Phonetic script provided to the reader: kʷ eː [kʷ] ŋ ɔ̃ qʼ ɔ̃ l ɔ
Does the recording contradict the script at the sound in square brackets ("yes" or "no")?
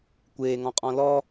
yes